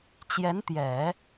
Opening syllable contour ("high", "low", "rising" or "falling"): rising